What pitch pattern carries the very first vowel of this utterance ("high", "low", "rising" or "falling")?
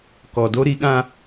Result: low